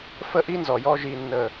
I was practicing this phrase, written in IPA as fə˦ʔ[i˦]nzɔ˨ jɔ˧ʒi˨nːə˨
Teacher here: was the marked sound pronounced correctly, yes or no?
yes